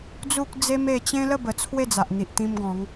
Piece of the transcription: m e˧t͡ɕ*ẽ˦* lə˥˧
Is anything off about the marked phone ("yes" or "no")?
no